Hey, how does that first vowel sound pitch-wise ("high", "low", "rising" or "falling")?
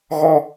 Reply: high